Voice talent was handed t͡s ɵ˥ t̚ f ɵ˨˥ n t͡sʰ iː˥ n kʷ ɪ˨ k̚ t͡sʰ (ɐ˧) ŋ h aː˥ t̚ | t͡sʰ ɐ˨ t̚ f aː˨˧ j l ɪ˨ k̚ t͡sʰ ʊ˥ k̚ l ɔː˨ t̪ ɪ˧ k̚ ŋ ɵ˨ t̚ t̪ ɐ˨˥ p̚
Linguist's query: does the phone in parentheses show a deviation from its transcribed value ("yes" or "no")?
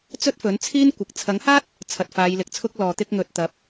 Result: yes